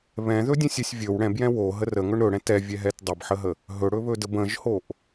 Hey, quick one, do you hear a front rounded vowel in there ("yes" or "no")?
no